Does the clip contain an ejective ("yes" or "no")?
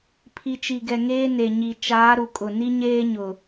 yes